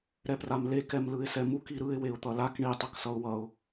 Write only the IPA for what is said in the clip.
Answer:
ɾ ɛ p r a m l e k ɛ m l ɯ ɪ̯ s ɛ m u k i ɾ ɯ ɪ̯ w e ʊ̯ t̪ ʌ l a k ɳ i tˤ ʌ k s ʌ ʊ̯ w ʌ ʊ̯

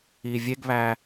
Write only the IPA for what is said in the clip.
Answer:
i vʲ e ɡ β æ

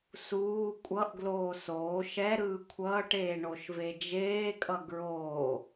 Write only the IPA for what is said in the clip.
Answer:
s uː kʷʼ ʌ ʔ ɡ l oː s oː ʃ ɛ ɾ ɯː kʷʰ ʌː ʈ eː ɳ o ʃ v e d͡ʒ eː kʼ ʌ ɡ ɹ oː

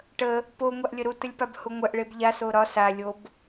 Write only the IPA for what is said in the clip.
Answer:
ʈ ə | p o ŋʷ a ʔ lʲ ə ɾ u t ə lʲ p a b h u ŋʷ ɜ ʔ ɭ e b ʎ a s o ɾ ɒ s a lʲ o b

